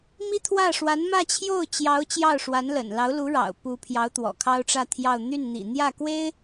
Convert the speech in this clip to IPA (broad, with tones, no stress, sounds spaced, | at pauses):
m i˥ t̪ʰ w ä˥˩ ʂ w a˧˥ n m ä˥˧ t͡ɕʰ j o˥˩ ʊ̯ t͡ɕ j ɑ˧˥ ʊ̯ t͡ɕ j ɑ˥˩ ʊ̯ ʂ w a˧˥ n l ə̰˨˩ n l ɑ˧˥ ʊ̯ l u˧˥ ɻ ɑ̰˨˩ ʊ̯ p u˧˥ pʰ j ɑ˧˥ ʊ̯ t̪ w ɔ̰˨˩ kʰ ɑ˥ ʊ̯ ʈ͡ʂ ä˥˧ t̪ʰ j ɑ˥˧ ʊ̯ n̪ y˥˩ n n̪ ḭ˨˩ n̪ j ä˥˩ k w e˥ ɪ̯